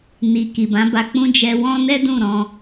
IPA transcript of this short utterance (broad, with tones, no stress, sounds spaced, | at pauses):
n i˨ k i˨ b ã˨˦ b a˧ k͡p ũ˦ d͡ʒ ɛ˧ w ɔ̃˦ n ɛ˦ d ũ˦˨ ɾ ɔ̃˧